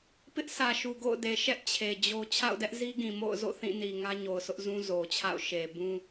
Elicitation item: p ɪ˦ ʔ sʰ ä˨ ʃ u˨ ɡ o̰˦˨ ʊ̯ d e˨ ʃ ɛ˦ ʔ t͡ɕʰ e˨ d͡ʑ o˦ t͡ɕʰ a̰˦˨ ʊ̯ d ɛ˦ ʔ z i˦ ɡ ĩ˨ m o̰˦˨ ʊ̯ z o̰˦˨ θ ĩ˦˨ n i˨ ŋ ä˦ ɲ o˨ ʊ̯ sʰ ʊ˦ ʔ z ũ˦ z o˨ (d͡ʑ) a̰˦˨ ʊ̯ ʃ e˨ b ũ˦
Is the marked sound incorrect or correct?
incorrect